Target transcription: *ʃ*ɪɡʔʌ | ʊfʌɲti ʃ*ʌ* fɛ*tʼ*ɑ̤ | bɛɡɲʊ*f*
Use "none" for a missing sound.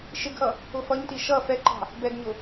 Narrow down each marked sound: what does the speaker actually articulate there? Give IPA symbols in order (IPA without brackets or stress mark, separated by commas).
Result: ʃ, ʌ, ǃ, none